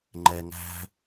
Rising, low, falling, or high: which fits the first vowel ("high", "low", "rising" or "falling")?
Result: low